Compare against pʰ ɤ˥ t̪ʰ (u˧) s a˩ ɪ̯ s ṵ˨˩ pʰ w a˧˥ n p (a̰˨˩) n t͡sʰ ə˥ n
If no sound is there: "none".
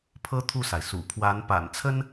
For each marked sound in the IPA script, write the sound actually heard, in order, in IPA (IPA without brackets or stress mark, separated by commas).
u˥˩, a̰˨˩